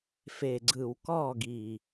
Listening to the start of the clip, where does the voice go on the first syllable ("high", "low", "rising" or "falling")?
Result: low